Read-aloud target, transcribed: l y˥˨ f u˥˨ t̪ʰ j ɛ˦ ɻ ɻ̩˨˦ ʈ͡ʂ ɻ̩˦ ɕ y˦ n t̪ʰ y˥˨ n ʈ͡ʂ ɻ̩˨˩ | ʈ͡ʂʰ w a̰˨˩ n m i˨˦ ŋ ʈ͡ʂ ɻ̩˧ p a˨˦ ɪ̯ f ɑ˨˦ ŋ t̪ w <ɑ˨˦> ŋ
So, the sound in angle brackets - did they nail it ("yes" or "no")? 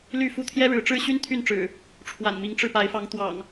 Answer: no